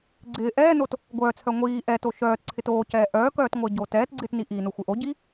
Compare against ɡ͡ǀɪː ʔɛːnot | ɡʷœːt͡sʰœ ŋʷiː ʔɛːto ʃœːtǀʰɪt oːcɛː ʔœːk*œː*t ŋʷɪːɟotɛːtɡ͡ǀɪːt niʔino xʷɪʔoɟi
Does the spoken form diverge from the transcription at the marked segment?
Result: no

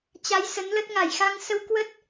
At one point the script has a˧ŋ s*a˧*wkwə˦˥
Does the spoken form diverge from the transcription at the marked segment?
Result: yes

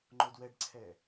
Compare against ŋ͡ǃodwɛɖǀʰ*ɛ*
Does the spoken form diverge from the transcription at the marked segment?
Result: no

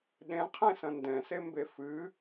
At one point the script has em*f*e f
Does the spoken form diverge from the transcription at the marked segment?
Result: yes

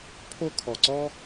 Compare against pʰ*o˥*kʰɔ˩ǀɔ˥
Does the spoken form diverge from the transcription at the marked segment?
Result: no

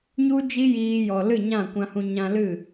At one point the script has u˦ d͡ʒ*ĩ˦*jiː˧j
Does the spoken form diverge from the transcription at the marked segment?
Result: yes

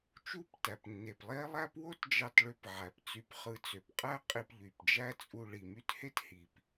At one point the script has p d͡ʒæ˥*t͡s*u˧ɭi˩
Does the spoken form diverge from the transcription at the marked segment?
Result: yes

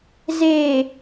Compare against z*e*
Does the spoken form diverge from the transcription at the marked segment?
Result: no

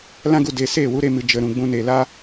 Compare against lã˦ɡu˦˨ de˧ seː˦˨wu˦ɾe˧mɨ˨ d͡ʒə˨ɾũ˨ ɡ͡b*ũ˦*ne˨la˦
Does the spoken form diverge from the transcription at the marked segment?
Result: yes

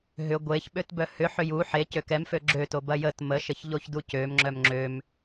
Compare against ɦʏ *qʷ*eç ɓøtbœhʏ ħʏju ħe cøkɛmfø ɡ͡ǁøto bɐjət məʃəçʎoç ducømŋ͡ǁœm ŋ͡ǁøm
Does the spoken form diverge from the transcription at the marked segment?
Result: yes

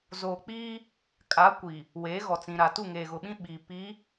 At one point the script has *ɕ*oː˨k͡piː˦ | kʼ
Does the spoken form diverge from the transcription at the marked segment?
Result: yes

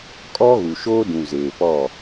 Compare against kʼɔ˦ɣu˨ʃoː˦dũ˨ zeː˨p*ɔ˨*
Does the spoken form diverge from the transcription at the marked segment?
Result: yes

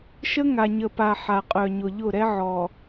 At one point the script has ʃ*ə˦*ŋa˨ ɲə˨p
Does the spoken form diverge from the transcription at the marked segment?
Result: no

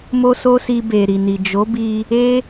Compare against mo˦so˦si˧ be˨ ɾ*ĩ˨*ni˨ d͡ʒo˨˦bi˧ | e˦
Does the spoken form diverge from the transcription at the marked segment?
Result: yes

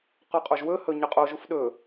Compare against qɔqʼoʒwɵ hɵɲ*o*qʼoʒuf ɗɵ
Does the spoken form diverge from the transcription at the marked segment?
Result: yes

